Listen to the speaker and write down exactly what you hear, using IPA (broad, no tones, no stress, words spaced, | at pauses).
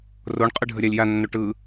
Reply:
roɳqʼɯ ɖʱəɾʲalʲjanːo ʈɯ